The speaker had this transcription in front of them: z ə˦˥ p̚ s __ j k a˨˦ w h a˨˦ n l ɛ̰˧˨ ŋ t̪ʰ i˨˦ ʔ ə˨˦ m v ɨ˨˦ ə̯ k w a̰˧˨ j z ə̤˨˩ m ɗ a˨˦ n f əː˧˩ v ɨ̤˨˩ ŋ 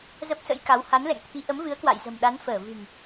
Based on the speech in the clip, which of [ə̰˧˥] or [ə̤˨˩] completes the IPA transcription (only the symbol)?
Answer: ə̰˧˥